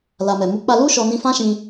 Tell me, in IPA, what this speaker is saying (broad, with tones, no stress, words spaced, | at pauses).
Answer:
la˨mɛ˨mu˨˦ k͡pa˧lu˦ ʃɔ˧ nĩ˧fã˦ʃĩ˧